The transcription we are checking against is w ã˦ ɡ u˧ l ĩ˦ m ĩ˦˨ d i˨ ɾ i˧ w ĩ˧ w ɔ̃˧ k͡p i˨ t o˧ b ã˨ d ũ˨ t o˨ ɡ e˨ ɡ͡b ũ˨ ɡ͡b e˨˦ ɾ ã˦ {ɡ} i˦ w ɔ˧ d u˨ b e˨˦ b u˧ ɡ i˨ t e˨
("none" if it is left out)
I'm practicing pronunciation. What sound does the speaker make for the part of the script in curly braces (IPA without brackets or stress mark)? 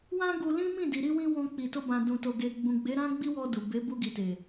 ɡ͡b